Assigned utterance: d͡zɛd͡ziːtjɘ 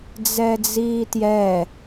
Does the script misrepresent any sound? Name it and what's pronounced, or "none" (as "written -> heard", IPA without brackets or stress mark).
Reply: ɘ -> ɛ